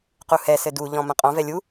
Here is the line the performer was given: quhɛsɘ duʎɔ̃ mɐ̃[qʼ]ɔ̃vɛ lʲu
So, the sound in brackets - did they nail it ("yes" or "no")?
yes